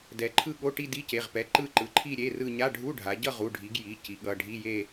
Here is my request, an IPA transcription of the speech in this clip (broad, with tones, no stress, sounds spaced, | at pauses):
d ɛ˩˧ ǃʰ ɯ˥˧ ɠ o˧˥˧ ʈ i˥˧ d i˧˥˧ c e˩˧˩ ʁ p ɛ˩˧˩ ǃ ɯ˥˧ ǃ ɯ˩˧ ǃʰ i˥˧ ɾʲ e˧˥˧ r ɯ˥˧ ɲ a˧˥˧ ɖʱ u˧˥˧ ɖʱ a˩˧ ɟ ʌ˥˧ ʁ u˩˧˩ ɖʱ i˩˧ ɡ j i˩˧˩ c i˩˧ ɠ ʌ˩˧˩ ɖʱ i˧˥˧ j e˥˧